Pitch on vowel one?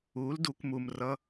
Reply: rising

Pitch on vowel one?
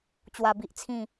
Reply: low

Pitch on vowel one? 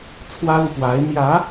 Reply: high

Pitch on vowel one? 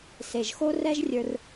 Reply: low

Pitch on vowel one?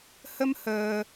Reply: high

